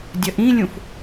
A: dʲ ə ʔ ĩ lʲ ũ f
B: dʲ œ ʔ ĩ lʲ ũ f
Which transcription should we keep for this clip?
A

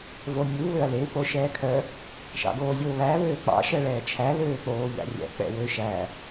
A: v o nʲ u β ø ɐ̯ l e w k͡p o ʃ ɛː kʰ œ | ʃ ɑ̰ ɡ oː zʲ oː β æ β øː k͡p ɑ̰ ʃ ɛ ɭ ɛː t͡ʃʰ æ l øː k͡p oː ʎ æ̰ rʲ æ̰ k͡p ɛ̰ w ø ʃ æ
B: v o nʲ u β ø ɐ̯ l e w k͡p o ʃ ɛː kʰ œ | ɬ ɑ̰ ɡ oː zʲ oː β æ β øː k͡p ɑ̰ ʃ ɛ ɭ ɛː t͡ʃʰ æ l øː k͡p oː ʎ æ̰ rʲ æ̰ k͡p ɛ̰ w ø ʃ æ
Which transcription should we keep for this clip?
A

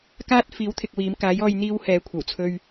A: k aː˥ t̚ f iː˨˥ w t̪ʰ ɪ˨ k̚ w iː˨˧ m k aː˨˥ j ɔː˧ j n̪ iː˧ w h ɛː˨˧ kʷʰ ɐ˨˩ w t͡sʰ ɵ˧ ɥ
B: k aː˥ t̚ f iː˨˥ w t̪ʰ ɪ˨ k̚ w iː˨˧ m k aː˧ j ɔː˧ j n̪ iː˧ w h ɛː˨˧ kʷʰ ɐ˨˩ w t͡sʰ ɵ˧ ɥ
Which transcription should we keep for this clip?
A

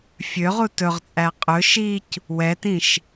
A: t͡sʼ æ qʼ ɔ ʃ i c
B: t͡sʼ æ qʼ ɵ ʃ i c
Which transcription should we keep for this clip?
B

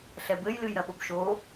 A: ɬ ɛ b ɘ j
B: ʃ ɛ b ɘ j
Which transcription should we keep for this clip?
A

